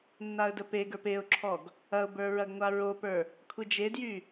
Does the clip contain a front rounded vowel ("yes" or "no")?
yes